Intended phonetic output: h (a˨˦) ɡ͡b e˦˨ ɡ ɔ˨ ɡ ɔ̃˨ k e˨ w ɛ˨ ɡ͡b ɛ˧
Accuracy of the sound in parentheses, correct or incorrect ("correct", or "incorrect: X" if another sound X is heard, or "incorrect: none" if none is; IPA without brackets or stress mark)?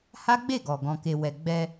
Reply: incorrect: a˦